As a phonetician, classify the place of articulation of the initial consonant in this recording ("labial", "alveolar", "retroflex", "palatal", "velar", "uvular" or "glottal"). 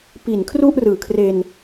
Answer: labial